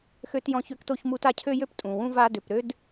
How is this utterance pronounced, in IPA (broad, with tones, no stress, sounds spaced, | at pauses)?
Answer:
x ø˦ t j ɔ̃˦ ç ø˥ k t o˦ ç m u˦ t a˦ cʰ ø˥ j ø˥ p tʼ ũ˩ w ũ˥ v a˦ d ø˩ p ɾ ø˥ d